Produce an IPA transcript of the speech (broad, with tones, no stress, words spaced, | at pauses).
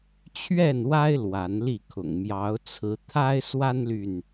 t͡ɕʰɥɛ˥˨nwa˦ɪ̯ lwa˨˦nli˥˨kʰʊ̰˨˩ŋ mjɑ˨˦ʊ̯t͡sʰɹ̩˨˦ t̪ʰa˦ɪ̯swa˦nly˨n